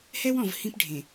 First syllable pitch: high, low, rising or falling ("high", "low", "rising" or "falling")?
high